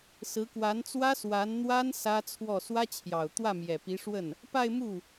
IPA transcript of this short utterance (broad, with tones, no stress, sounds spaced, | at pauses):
s ɹ̩˧˥ k w a˧˥ n t͡s w ä˥ s w a˧˥ n n̪ w a˥ n s ä˥ t͡sʰ w ɔ˥˩ s w ä˥ t͡ɕʰ j ɑ˨˩ ʊ̯ t̪ w ä˥˩ m j ɛ˨˩ p i˧˥ ʂ w ə˥˩ n | p a˥˧ ɪ̯ m u˥˩